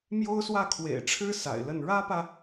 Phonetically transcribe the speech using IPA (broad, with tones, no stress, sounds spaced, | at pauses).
m j o˥ ʊ̯ s w ä˥˩ kʰ w ḛ˨˩ ɪ̯ ʈ͡ʂʰ ɻ̩˥ s a̰˨˩ ɪ̯ l ə˥˩ n ɻ ä˥ p ä˨